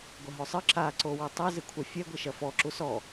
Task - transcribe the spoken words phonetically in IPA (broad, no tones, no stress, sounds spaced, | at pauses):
ɡʷ ɐ ɦ o sˤ ɨ ǁ a ǀ o w e tˤ i z ɨ kʷʰ ɐ fʲ ɛ ɡʷ i ʃ ɐ f ɔ ǁ u s ɔ